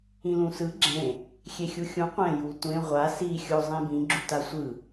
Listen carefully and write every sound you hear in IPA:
ĩlũsɯ ɡ͡ǁẽ | xʲexʲuxʲũ qʷɛ̃ jutʷẽ ʁʷa si xʲo zˤẽbĩ ɡ͡ǁutasʷɯ

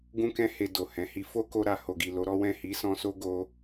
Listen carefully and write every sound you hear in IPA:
ɡũ˦kɛ̃˦he˧ do˨hɛ̃˨˦ hi˧ fo˦ko˧ɾa˨ ho˨ɡi˨ lo˨˦ɾɔ˦ wɛ̃˦˨hi˨˦sɔ̃˧ so˦ɡo˧

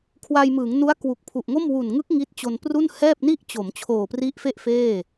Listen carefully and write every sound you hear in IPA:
kʰwa˧jmɯː˩˦ŋnu˦˥a̯ kwu˨˩k̚pʰu˨˩ʔŋo˥˩m wu˨˩nŋɯ˦˥k̚ ŋi˦˥t̚ t͡ɕo˧npru˥˩n hɛː˥˩p̚ni˥˩ʔt͡ɕo˩˦m t͡ɕʰoː˨˩pri˦˥ʔfe˥˩ʔ feː˥˩

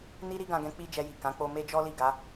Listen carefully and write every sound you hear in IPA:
ni˦ ɾi˦ɡã˧ɡɛ̃˧ k͡pi˦d͡ʒɛ˧ji˨ kã˨˦k͡po˧me˦d͡ʒɔ˦ li˦˨ɡa˨˦

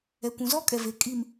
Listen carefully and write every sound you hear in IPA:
ɛ˨kʷũ˨zɔ˦kʼɛ˨ ve˨ kʼi˨m

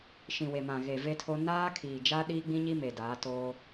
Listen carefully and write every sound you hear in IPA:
ʃĩ˨we˨mã˨ ɣe˨ve˦tʰo˦ naː˦kʰiː˨d͡ʒa˦ ɗiː˦ɡ͡bĩ˦ɲi˦ me˨daː˨˦toː˦

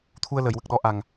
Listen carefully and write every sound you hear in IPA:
t̪ʰu˧ə̯lə˨˩˨jwə˨˩k̚ɗɔ˧˥ ʔa˨˩ŋ

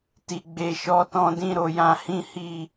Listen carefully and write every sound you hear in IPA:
ti˨ɡ͡be˨ ʃɔ˨˦tɔ̃˧dĩ˧ ɾo˧jã˦hĩ˦ hi˦˨

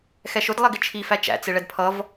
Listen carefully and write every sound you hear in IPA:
xɛʃʊd lˠɛɡɪt͡ʃʰi fæt͡ʃæ̰ t͡sɪɭɛdpʰʌv

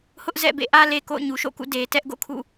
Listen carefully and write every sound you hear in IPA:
hʊ˦ʔ zɛ̰˦˨bḛ˦˨ʔä˦ le˨ko̰˦˨ʊ̯ɲu˨ ʃo̰˦˨kṵ˦˨ de˨ tɛ˦ʔɡo̰˦˨kʰṵ˦˨

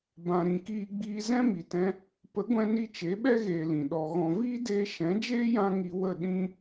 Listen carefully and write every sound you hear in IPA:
bã˨ ɾĩ˨kiː˧ɡ͡biː˧ zɛ̃˦mi˨tɛ̃˧ | pə˨˦ɡʷɛ̃˧ni˧ t͡ʃe˨˦ɓɛ˦ɣeː˨ lĩ˨ɗɔ˧ ɣɔ̃˨viː˦deː˧ ʃɛ̃˨˦d͡ʒeː˦ jã˦ ŋi˧wə˦˨ ɗĩ˦

